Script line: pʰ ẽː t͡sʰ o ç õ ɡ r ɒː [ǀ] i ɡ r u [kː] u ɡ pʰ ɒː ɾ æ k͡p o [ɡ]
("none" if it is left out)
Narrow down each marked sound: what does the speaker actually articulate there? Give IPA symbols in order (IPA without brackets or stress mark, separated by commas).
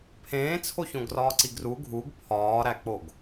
ǀ, ɡʱ, ɡ